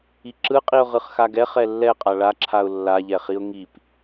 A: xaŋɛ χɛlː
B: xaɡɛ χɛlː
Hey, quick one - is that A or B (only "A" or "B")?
B